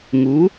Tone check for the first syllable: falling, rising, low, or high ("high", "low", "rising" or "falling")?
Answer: rising